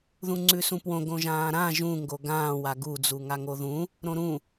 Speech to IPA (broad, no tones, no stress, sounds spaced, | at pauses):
ð ũ ŋ͡ǀ ʉ s ũ p w õ ɡ õ ʒ ãː ɾ ã ʒ ũ ŋ ɡ o ɡ ãː w a ɡ u d͡z u ŋ a ŋ o ð ũ | ɾ õ ɾ ũ